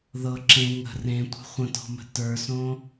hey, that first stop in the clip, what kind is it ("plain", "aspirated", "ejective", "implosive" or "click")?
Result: click